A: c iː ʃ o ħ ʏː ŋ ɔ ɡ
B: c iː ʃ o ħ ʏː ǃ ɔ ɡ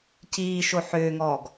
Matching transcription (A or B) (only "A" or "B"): A